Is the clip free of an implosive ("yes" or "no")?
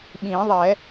no